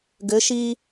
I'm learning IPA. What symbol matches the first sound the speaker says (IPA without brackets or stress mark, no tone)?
ɡ